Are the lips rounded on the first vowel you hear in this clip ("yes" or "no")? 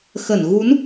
no